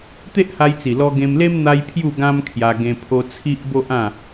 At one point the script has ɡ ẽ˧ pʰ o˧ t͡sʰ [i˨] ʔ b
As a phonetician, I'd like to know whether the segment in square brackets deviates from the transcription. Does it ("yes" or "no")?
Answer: yes